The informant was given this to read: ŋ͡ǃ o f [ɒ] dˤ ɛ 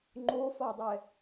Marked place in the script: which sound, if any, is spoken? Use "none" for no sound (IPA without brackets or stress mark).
ɒ